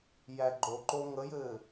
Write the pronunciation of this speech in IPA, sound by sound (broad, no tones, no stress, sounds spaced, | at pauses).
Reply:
j æ ɡ͡ǃ o ǃ o ŋ ə j ɘː